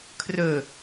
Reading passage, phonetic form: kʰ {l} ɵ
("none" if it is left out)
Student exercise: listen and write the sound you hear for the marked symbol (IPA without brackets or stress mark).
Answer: r